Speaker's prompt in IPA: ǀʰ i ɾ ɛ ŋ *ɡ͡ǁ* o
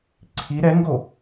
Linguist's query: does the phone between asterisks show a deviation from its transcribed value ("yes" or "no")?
yes